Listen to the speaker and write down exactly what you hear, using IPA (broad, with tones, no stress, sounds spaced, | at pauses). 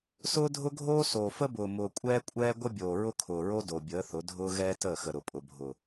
s ʊː˦ dʱ ʊ˦ ɡʱ oː˦ s oː˨ f ə˦ b ʊː˨ m ʊː˨ kʷʼ ɛː˦ kʷʼ ɛː˦ ɡʷ ə˦ bʲ oː˨ ɹ ʊ˦ kʰ ʊː˨ ɹ o˦ d o˨ bʲ əː˨˦ θ ʊ˨˦ dʱ ʊː˦ ɣ ɛː˦ t əː˦˨ x ə˨ ɾ ʊ˨ pʼ ʊ˨ bʱ ʊ˨